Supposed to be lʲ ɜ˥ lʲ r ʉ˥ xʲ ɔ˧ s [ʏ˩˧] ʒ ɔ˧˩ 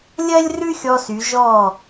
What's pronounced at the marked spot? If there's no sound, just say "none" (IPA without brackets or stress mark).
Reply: y˩˧